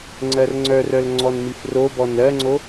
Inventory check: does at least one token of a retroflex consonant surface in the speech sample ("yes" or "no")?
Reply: no